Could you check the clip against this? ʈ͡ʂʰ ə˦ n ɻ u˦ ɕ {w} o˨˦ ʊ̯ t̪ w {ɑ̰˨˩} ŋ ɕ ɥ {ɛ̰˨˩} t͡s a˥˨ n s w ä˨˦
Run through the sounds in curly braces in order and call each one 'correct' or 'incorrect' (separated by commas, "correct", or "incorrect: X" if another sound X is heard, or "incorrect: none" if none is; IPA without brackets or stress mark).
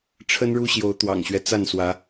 incorrect: j, correct, incorrect: ɛ˦